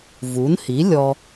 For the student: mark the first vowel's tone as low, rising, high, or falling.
rising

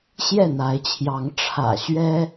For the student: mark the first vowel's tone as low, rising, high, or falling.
falling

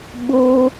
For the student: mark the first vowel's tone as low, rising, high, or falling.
high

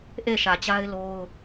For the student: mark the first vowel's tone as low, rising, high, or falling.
falling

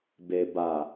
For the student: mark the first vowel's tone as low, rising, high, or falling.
low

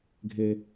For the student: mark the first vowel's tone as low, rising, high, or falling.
low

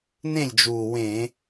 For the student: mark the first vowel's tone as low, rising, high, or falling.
falling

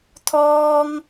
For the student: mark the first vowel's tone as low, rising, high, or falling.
high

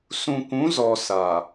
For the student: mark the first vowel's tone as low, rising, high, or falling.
low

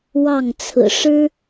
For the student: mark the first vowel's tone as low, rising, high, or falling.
falling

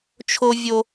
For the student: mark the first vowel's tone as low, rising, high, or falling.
high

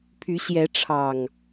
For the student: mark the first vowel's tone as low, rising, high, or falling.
rising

